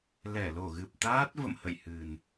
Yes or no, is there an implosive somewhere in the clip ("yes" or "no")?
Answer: no